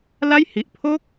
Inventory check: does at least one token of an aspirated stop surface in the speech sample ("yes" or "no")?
yes